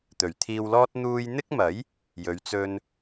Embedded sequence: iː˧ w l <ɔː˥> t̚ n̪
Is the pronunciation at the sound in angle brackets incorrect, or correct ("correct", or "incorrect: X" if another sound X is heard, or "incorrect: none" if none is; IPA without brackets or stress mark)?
correct